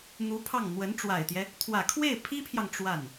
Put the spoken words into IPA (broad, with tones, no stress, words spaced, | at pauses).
n̪u˧˥pʰɑ˥˩ŋ n̪wə˧˥nʈ͡ʂwa˨˩ɪ̯t̪jɛ˦ | t̪ʰwä˨˩kʰwe˥˩ɪ̯pʰi˥pʰjɑ˨ŋ ʈ͡ʂwa˥˩n